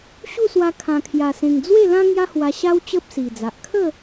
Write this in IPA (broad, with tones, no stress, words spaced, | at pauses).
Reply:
ɕu˥˧swa˧ kʰã˨˩kʰja˨˩ sẽ˨˩ŋ d͡zwe˥˧lã˦ ŋja˦hwa˧ɕa˦w t͡ɕə˦p̚si˨˩d͡za˨ʔ kʰə˥˧